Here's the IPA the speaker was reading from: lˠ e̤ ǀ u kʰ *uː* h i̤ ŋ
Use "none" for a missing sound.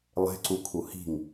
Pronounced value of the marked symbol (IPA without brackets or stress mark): u